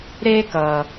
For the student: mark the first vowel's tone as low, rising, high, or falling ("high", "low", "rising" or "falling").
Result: high